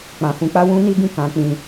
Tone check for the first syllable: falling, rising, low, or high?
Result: low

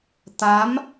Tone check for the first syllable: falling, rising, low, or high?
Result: rising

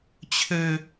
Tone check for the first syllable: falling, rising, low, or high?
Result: high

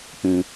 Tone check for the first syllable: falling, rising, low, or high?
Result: low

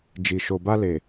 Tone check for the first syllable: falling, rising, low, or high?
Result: low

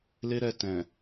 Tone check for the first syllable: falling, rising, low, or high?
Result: high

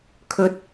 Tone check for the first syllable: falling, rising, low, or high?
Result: low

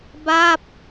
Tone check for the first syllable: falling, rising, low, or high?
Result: falling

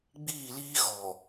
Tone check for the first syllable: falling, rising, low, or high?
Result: falling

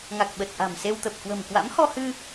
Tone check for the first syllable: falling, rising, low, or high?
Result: low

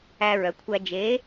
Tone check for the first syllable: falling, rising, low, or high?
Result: high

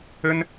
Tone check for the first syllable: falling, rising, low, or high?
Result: high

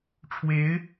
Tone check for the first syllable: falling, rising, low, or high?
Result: rising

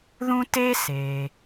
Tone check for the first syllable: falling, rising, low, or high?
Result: high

